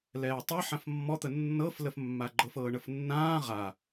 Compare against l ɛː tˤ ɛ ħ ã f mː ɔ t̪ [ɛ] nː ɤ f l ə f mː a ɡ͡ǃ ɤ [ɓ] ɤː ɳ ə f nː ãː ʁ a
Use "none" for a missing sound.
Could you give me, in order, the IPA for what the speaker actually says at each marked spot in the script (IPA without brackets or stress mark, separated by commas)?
ə, f